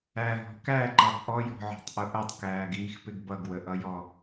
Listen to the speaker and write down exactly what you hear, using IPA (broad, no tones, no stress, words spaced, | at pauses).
æɦɔ̤ kæǃɑb ʔɔjɔ̤ʕɔ̤tˤʔʊ ʔʌtˤkæːɡiːxpɪɡ bʌɡwəʔʌjɔ